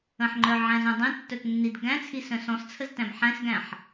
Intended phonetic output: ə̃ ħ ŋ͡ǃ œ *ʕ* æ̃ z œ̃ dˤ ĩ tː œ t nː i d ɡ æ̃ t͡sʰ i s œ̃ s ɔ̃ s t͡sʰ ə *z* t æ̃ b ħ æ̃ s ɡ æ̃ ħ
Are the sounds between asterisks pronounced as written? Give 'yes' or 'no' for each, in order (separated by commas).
yes, yes